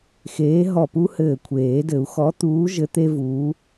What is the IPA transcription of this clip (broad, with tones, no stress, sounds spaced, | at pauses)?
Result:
x eː˨˥ ɦ ɔ˧˩ p u˥ h ɘː˧˩ kʷʰ eː˨˩˦ d ɘ˨˩˦ u̯ x ɔ˨˥ t̪ uː˨˥ ʒ ɘ˨˥ t̪ e˥ v uː˨˥